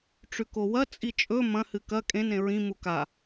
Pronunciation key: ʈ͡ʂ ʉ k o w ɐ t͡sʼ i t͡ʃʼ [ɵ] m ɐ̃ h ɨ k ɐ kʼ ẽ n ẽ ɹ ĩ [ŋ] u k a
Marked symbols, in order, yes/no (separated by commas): yes, no